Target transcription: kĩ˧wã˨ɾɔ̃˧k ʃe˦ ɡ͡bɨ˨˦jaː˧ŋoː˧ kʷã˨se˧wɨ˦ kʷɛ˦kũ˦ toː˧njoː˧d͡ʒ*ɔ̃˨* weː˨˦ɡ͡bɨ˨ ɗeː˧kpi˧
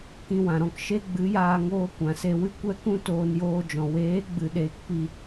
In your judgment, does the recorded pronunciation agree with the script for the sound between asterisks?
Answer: yes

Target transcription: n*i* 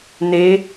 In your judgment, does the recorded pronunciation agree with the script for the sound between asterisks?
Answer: no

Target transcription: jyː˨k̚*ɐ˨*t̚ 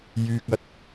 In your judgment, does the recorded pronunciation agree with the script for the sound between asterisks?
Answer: yes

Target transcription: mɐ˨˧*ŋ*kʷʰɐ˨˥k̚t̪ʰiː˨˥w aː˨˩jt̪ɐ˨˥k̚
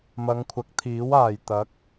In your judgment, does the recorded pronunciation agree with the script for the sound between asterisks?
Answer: yes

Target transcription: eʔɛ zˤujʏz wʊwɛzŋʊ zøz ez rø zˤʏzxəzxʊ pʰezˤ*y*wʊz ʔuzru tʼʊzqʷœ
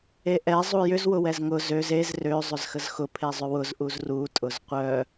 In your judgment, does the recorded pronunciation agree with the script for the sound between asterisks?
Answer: no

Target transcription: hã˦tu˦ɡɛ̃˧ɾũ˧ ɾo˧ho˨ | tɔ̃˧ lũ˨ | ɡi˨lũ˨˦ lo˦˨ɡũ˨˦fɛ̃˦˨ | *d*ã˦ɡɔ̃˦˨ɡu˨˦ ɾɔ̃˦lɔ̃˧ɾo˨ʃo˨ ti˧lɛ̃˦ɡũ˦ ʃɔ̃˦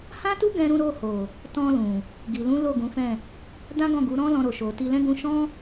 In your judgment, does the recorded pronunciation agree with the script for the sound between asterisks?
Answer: yes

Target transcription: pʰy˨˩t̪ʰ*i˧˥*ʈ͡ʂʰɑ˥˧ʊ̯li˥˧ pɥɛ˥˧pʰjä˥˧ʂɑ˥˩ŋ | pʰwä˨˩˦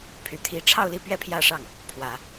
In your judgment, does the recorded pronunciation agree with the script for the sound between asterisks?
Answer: yes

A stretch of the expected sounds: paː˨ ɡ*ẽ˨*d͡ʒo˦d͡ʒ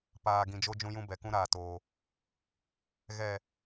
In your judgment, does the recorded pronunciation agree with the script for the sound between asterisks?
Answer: no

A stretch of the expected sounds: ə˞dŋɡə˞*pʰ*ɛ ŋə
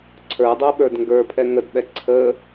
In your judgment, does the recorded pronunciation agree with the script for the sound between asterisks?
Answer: yes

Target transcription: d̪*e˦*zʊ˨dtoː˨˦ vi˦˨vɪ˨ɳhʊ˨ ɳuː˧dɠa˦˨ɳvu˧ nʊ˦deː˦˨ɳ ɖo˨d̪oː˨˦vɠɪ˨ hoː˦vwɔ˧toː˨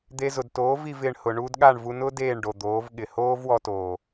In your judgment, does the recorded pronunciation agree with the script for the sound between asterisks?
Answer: no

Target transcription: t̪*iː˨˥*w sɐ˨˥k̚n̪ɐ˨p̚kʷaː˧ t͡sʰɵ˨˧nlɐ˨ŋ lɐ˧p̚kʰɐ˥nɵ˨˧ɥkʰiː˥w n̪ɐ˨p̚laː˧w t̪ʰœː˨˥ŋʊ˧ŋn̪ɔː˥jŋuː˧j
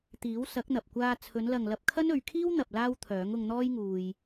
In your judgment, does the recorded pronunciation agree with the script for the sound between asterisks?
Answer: yes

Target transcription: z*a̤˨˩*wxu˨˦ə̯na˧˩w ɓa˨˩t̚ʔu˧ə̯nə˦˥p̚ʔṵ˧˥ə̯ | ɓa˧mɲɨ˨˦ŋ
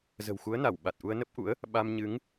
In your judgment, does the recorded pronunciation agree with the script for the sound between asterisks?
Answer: no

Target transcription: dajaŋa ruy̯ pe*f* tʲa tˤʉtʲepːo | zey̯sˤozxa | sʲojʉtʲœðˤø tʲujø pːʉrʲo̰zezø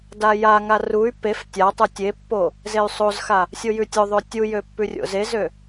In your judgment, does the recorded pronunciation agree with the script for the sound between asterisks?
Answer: yes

